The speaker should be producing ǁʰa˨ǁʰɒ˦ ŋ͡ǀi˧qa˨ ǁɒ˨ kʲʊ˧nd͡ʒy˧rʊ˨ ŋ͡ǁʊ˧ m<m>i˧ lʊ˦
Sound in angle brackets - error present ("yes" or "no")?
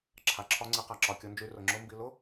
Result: yes